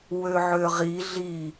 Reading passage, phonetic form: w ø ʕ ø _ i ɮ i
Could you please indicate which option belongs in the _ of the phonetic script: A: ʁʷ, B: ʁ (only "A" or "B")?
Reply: B